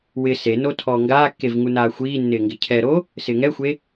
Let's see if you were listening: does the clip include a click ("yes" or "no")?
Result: no